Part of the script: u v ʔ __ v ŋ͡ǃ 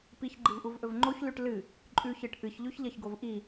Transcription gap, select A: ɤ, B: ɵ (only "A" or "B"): B